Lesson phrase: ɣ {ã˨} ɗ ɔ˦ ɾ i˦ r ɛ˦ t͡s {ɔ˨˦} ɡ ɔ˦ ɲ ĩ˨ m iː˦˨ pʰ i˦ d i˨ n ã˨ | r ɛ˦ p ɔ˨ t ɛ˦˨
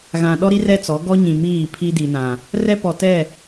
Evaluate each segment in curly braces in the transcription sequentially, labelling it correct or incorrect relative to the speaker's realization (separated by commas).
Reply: correct, correct